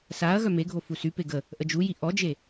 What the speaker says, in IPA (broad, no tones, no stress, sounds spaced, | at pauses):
s a ɐ̯ ɣ œ m e ɡʱ o f u s y p e ɡ ə | ʔ ə d͡ʒ u j i ʔ ɔ d͡ʒ e